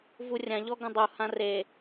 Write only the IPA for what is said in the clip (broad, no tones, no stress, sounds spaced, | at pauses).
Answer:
v u rʲ ã ʎ ɔ ɡ ɐ̃ dˤ u h ã r e